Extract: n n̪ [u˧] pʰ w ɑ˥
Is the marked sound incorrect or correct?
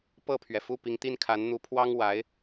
incorrect